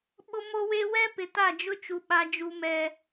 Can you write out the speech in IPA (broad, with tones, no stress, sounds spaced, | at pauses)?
ɓ ʊ˦ m o˦ w e˦ w ɛ˦ p ɪ˨ t a˦˨ d͡ʒ ʊ˦ t͡ʃ u˨ ɓ a˨ d͡ʒ u˨ m ɛ˨